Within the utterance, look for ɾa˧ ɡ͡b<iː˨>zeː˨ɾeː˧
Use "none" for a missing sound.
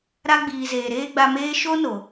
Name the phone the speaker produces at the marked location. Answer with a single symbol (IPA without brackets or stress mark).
iː˨